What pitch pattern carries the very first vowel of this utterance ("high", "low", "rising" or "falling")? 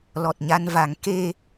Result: low